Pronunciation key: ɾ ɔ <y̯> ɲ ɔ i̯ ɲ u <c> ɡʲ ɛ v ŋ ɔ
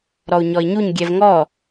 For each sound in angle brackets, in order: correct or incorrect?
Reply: incorrect, incorrect

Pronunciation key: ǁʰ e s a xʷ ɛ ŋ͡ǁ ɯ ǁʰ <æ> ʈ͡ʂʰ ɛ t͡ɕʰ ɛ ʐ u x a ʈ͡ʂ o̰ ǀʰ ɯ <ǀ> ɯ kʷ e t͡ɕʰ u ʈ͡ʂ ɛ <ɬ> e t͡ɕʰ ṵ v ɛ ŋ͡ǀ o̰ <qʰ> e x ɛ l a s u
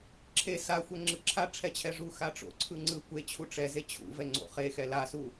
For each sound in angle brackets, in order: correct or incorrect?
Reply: incorrect, incorrect, incorrect, incorrect

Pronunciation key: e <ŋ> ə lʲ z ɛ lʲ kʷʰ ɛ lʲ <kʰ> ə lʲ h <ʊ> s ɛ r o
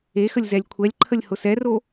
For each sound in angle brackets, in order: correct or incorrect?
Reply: incorrect, incorrect, correct

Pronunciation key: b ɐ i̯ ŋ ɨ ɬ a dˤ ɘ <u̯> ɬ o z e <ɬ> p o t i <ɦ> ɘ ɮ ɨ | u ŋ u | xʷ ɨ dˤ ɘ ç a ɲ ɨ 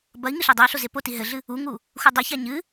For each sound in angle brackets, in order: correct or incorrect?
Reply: incorrect, incorrect, correct

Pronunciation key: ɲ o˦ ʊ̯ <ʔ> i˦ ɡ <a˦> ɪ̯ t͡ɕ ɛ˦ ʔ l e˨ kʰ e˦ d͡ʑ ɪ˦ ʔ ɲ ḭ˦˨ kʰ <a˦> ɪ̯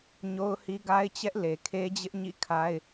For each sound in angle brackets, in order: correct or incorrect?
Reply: incorrect, correct, correct

